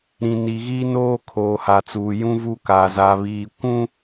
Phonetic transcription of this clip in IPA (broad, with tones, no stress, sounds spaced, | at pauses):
ɾ ĩ˨ n i˨ ɣ iː˦ n oː˦ kʰ oː˨ h a˨ t͡s uː˨ j ũ˦ v u˦ k aː˨ z a˨ β iː˨ kʷ ũ˦